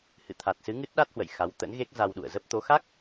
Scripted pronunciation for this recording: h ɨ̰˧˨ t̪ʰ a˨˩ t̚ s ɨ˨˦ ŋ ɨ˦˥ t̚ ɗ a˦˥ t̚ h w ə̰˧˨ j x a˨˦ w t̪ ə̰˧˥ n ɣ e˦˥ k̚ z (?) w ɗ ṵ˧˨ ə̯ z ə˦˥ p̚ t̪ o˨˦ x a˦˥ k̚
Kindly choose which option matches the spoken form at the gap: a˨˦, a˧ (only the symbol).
a˧